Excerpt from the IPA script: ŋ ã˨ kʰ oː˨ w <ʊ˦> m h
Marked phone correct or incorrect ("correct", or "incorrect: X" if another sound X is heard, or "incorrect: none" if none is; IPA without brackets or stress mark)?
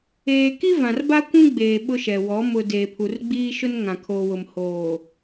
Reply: incorrect: ʊ˨